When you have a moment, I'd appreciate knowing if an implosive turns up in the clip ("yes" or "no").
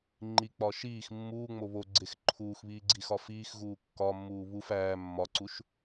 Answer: no